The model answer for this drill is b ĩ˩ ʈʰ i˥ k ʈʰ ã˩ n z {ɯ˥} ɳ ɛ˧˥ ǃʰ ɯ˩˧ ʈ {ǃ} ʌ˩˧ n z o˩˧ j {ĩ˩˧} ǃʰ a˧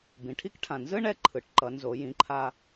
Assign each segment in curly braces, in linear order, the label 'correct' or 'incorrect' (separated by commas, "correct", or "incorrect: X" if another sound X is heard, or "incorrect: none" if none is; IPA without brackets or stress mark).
correct, correct, correct